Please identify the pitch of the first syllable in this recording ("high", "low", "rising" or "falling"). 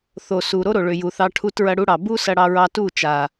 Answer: low